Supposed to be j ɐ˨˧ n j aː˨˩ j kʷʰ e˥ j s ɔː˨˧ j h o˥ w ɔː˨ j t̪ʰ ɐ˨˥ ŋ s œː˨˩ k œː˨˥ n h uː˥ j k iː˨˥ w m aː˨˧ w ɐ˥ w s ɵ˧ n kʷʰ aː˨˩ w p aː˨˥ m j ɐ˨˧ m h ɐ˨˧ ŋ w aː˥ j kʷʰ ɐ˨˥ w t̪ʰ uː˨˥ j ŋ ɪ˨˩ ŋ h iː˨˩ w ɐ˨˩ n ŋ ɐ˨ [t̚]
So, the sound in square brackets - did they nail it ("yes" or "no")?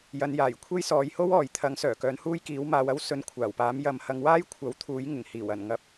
no